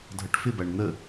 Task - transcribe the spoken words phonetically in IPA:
dʱ ʌ ʈ f ɪ b æ ɳ n̪ ə

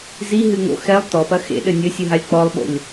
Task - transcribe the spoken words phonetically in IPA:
z i ɦ ɨ ŋ o̰ x ɛ lˠ t ɔ p ɐ x ḛ ɗ ɘ nʲ ɘ sʲ ɨ ɦ a lʲ k͡p ɔ lˠ ɓ o̰ lʲ

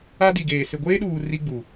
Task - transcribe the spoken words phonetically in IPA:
a˦ d i˨ ɡ eː˨ s ɪ˨ ɡʷ eː˦ ɗ uː˨ r i˦ ɡ͡b u˨

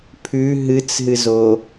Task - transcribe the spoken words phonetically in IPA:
pʰ ʉ ɦ ɨ t͡s ɦ ɨ z o

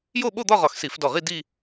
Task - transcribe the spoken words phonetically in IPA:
j o˥˧ ɓ o˥˧ d̪ ɒ˥˧ ʁ ɒ˧˩ x s i˧˩˧ f d ɔ˧˩ ʁ i˥˧ d i˥˧

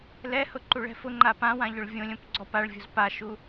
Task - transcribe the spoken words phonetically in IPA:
l ɛ h ʊ ǃ u ɭ ɛ̤ f ʊ ŋ͡ǃ a p ã w ã ʎ ʊ ɭ vʲ õ lʲ õ p ɡ͡ǀ ɔ p a ɭ vʲ o̤ z p a ʃ u

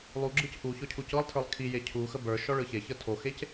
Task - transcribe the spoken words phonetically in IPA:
lˠ u ɡ͡ǁ ɯ c ʔ u ç ɔ cʰ u c ɤ lˠ tʰ ə˞ lˠ kʰ i j e cʰ u x ə b ə˞ ʃ ɔ ɭ ɯ ç e ç ə tʰ o x e c

